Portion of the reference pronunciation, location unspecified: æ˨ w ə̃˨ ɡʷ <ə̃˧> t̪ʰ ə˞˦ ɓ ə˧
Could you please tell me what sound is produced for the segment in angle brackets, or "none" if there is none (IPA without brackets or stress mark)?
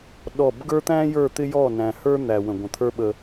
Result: ə̃˨